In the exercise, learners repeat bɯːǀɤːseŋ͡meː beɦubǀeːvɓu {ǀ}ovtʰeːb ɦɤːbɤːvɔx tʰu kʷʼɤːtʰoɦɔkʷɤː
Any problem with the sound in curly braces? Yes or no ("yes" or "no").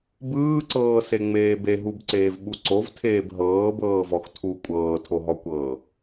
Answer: no